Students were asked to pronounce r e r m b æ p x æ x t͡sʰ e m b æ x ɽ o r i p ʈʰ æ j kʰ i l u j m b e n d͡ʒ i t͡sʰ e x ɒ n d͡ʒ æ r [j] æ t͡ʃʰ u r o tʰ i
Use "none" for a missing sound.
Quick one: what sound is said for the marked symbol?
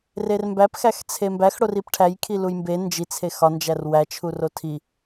w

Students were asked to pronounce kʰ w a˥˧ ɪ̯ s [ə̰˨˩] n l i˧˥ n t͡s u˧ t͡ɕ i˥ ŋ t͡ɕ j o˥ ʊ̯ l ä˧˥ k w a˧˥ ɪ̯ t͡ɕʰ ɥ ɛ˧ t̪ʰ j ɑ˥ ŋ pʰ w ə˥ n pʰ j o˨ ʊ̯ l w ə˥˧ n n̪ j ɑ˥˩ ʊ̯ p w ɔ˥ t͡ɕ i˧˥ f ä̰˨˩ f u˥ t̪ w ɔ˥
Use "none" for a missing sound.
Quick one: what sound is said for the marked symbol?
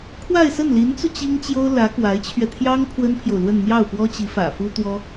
ə˥˩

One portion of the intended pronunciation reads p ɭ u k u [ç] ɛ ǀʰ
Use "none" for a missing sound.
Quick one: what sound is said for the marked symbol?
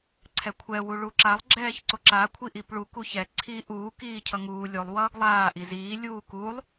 ç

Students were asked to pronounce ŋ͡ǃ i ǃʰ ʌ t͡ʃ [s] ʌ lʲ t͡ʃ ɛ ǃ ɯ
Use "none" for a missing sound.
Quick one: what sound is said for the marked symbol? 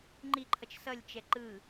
s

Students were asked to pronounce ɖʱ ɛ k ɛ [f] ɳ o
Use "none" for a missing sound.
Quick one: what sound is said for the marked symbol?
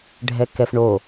f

